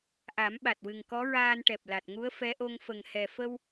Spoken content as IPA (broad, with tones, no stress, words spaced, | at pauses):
ʔa˨˩˦mɓa˨˩t̚wɨ˨˩ŋkɔ˧˥ ɹaː˧nʈɛ˨˩p̚la˨˩t̚ŋu˧˥ə̯ fɛ˧˥ʔo˧ŋfə˨˩ŋ hɛ˨˩fə˧w